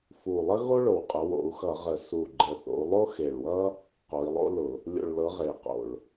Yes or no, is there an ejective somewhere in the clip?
yes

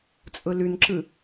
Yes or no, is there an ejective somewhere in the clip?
yes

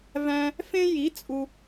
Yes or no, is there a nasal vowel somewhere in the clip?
yes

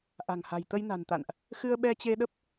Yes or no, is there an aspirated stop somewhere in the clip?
no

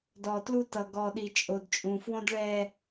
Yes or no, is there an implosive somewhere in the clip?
yes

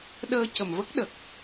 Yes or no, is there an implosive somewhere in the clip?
yes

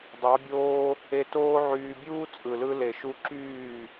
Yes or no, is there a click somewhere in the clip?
yes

